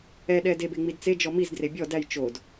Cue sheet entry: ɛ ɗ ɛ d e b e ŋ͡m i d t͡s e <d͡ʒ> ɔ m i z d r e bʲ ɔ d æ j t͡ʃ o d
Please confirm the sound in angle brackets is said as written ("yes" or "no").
yes